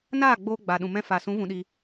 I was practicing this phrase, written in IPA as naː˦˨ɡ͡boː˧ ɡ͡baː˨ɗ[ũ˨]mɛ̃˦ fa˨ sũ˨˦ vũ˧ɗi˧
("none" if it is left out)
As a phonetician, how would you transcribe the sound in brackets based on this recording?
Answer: ũ˨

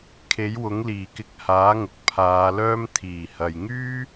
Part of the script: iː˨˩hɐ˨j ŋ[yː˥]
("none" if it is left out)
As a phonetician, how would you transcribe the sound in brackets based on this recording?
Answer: yː˥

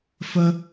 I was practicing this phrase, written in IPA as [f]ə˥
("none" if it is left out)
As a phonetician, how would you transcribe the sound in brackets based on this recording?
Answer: f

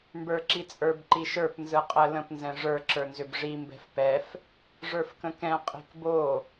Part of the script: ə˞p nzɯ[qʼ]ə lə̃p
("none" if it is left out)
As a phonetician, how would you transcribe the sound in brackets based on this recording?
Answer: qʼ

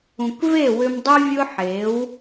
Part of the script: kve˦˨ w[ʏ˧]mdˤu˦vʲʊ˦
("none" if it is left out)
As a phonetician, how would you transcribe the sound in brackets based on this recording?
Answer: ʏ˧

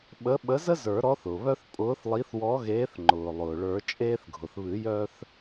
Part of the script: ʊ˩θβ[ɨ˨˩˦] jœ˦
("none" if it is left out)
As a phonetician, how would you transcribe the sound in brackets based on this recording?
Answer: ɨ˨˩˦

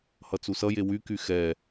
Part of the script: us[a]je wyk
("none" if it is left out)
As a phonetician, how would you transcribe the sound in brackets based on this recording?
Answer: ʌ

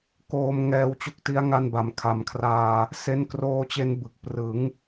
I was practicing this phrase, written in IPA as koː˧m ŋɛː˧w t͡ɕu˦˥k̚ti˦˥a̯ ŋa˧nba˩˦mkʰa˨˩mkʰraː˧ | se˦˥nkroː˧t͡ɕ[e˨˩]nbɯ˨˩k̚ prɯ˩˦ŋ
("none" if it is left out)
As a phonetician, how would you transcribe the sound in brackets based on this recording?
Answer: e˧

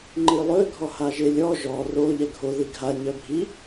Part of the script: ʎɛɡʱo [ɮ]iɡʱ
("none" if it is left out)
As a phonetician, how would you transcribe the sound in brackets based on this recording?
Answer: ð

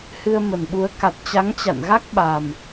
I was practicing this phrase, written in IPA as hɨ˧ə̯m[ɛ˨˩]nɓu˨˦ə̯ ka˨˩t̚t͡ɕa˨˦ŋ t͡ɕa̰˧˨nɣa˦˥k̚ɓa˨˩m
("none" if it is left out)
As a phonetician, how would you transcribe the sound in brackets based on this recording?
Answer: ə˨˩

